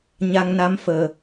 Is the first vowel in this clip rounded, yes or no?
no